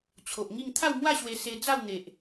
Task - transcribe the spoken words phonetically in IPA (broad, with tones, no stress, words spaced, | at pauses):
t͡ɕʰo˨ʔŋi˥˧ŋ t̪ʰa˥˧wmwa˥˧ɕwe˧ se˧d͡za˥˧w n̪e˨ʔ